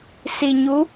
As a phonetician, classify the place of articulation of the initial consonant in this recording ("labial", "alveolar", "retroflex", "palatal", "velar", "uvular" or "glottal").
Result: alveolar